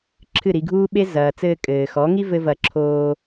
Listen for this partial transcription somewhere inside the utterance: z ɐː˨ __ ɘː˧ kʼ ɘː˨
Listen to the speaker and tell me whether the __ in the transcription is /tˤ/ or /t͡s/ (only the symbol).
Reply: t͡s